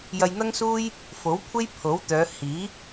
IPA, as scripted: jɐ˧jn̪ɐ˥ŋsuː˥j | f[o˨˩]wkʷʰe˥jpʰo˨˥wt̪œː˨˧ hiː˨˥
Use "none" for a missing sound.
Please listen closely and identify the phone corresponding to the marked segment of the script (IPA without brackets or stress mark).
o˨˥